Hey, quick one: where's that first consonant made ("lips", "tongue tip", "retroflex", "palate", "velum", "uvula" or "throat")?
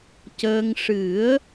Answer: palate